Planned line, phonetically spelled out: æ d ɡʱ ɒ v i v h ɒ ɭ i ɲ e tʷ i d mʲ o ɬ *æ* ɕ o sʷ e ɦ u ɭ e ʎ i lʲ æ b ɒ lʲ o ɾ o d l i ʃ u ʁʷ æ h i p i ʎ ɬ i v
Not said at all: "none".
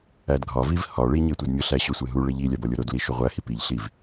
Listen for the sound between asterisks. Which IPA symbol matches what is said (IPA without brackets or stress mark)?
æ